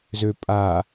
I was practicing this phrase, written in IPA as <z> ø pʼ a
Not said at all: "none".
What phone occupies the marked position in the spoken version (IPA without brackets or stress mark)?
z